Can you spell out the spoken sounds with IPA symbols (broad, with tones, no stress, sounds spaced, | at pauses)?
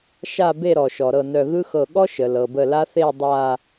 ʃ a˥˧ b e˥˧ ɾ ɔ˩ ʃ ɔ˩ ɾ ɤ˧˩ n œ˧˩ ɣ ɯ˥ x ɤ˧˩ ɠ ɔ˥ ʃ ə˩ l ɤ˩ b ə˧˩ l a˥ θ e˥˧ dˤ a˥˧